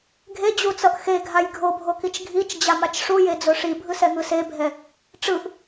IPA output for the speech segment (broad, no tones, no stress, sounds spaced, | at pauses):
ɡʱ e d͡ʑ u t͡s ʌ ʔ x e ɡʱ a j ɡʱ o bʱ o k i t͡ʃ ɡʱ i t͡ʃ d͡ʑ a m a t͡ʃ ʂ u j e d͡z o ʂ i bʱ ɯ s ɛ ŋ ɯ s e bʱ ɛ | ʈ͡ʂ ɯ ʔ